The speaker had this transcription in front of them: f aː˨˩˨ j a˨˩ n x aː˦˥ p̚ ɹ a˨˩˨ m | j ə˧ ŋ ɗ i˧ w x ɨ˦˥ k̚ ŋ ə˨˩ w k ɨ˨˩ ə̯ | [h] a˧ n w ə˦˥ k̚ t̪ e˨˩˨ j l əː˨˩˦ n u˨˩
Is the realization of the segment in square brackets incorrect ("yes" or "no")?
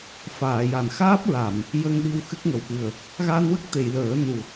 yes